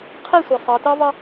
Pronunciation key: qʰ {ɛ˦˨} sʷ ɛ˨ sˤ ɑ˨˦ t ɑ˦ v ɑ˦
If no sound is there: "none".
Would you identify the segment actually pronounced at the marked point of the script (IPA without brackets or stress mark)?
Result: ɛ˦˨